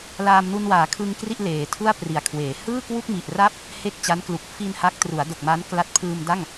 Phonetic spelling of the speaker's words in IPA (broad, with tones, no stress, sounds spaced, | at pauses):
l aː˧ m n u˧ n w aː˩˦ kʰ ɯ˧ ŋ k r i˥˩ ʔ l eː˩˦ tʰ u˥˩ a̯ p r i˩˦ a̯ kʰ w eː˩˦ h ɯː˥˩ k w u˥˩ k̚ m i˨˩ ʔ r a˥˩ p̚ | h e˥˩ k̚ t͡ɕ a˦˥ n k l u˨˩ k̚ f i˧ n h a˦˥ k̚ t r u˩˦ a̯ d o˨˩ k̚ m a˦˥ n k l a˦˥ t̚ pʰ ɯː˧ m d a˥˩ ŋ